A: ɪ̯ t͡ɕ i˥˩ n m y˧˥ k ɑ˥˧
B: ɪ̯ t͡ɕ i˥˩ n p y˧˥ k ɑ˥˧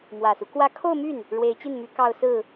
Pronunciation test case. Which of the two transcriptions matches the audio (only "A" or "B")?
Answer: A